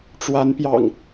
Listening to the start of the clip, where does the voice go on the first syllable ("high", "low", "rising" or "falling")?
rising